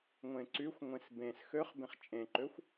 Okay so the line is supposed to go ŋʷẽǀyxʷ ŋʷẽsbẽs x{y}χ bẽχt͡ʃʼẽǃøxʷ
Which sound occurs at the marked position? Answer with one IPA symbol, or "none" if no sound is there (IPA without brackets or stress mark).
ø